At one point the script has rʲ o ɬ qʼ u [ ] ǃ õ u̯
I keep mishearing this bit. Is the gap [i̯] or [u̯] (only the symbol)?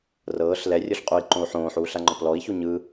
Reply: i̯